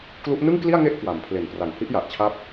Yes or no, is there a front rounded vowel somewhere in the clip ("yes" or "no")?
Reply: no